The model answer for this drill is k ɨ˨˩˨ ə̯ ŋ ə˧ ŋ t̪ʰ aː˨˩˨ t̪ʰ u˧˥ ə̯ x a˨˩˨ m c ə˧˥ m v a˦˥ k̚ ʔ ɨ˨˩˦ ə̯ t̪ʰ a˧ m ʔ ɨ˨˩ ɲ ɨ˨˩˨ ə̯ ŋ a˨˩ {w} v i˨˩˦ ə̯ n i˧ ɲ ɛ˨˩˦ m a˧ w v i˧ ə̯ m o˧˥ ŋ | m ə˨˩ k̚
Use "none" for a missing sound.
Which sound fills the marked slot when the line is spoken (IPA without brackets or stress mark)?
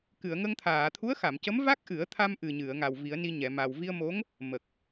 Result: w